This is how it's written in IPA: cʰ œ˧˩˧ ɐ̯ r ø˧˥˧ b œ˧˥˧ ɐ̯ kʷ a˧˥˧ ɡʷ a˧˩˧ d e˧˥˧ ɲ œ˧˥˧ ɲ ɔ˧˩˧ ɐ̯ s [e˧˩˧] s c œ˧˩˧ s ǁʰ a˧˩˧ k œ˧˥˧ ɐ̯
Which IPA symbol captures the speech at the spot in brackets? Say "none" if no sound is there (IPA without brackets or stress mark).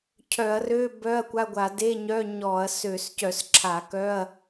ø˧˩˧